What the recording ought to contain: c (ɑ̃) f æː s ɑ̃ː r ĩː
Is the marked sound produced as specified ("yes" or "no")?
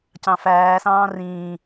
yes